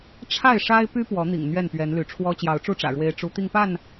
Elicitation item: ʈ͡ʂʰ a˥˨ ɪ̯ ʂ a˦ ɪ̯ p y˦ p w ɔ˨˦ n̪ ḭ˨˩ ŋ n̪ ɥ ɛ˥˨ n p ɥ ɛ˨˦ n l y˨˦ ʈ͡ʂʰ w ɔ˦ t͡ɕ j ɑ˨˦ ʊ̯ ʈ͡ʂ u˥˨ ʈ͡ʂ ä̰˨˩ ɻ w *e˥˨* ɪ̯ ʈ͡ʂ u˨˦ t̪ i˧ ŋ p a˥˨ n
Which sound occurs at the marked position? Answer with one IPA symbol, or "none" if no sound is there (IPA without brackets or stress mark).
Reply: e˦